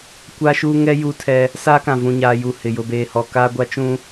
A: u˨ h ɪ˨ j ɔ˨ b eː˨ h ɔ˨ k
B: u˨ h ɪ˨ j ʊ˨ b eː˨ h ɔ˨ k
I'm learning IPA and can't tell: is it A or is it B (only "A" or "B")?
B